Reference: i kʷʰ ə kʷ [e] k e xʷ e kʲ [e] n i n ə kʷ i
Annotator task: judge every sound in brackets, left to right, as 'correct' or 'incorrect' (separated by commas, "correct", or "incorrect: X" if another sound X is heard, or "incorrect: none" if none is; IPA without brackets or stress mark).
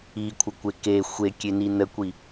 correct, correct